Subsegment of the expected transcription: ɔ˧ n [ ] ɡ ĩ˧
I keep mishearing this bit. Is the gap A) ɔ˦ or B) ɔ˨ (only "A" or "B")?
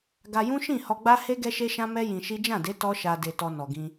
B